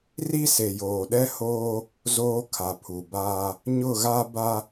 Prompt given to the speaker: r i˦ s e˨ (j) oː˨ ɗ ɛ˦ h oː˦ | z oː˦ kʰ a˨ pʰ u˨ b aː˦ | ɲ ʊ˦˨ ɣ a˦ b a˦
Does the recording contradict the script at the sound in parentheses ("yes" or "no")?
no